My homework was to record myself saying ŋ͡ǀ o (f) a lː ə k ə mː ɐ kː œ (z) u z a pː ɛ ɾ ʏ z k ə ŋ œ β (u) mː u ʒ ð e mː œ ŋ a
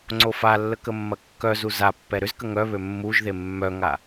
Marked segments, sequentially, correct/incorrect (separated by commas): correct, correct, incorrect